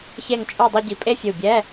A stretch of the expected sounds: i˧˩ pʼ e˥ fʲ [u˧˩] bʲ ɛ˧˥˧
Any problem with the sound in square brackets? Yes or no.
no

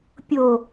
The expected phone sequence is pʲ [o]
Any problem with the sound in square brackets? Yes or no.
no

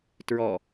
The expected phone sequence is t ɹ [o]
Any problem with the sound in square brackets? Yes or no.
yes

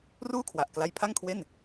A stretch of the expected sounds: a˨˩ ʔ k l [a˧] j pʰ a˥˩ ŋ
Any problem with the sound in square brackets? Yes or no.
no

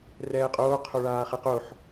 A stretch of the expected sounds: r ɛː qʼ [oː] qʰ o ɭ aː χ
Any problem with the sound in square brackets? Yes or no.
no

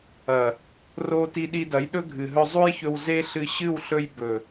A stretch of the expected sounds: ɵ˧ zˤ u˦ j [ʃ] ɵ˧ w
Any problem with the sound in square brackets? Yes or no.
yes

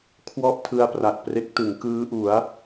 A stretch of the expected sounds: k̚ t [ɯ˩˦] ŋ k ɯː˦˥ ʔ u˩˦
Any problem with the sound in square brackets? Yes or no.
no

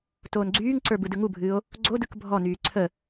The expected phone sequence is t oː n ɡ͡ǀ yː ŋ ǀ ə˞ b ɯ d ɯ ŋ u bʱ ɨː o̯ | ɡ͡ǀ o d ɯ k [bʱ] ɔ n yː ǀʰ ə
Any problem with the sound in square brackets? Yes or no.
no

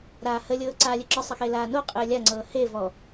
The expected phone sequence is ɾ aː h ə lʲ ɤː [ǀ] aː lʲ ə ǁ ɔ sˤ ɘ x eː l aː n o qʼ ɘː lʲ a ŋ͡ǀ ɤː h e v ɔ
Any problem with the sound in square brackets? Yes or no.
no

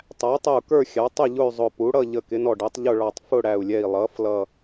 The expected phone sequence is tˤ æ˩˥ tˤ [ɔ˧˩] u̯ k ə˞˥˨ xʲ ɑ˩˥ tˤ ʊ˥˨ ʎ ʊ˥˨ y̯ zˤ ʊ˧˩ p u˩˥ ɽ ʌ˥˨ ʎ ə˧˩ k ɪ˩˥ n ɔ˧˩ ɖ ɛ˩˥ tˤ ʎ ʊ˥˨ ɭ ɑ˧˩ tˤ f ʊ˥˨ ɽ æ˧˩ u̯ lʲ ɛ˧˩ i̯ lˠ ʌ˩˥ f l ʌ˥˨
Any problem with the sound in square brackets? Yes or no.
yes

